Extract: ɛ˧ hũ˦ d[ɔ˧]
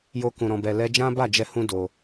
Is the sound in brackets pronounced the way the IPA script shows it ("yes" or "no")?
no